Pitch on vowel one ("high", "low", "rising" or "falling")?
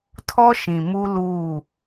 high